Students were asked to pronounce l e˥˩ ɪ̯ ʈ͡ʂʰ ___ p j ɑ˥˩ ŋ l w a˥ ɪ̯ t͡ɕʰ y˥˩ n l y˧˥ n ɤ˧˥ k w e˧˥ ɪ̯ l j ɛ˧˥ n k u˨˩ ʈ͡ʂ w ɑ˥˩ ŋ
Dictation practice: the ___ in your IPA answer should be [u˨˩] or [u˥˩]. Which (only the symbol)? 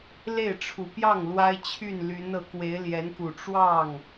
u˨˩